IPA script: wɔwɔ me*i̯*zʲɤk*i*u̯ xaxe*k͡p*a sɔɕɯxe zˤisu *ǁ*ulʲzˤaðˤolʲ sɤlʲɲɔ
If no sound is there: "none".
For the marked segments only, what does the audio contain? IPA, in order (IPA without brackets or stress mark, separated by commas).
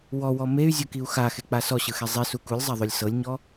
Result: y̯, i, k͡p, k